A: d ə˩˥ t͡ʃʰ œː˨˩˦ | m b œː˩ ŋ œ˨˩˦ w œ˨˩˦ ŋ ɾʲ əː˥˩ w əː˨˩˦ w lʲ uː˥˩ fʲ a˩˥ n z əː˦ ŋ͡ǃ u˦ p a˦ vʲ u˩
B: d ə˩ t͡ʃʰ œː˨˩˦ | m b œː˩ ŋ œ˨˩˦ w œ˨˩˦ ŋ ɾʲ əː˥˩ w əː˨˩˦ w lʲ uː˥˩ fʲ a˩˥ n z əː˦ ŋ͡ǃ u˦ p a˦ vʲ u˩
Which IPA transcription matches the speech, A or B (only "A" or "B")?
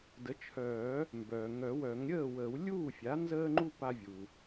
A